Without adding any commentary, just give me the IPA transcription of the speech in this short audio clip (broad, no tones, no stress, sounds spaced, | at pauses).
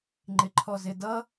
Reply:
ŋ͡ǃ ɪ ǃʰ ɔ z ɪ d ʌ